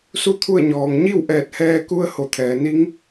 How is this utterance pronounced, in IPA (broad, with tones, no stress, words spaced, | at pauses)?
su˥˨t̪ʰu˥˨ə̯ɲɔː˩ŋ ɲi˥˨wʔɛː˧˩t̚hɛː˧ ku˧˥ə̯ho˧˩t̪ʰɛː˩ni˧˥ŋ